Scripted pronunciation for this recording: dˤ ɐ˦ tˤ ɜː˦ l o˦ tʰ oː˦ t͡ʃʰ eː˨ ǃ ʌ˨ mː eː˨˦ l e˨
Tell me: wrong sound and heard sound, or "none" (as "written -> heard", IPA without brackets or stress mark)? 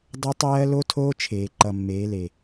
none